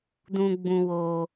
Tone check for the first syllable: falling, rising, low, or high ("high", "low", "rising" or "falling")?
low